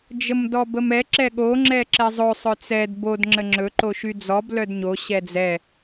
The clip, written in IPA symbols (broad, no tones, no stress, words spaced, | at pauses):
d͡ʒəmdɔbəmɛ ǁɛɠo ŋ͡ǁɛǁɛzˤɵ sˤœt͡sɛd bod ŋ͡ǁəŋ͡ǁɵ ǃoʃyd͡zɔb lœdɲo ɕɛd͡zɛ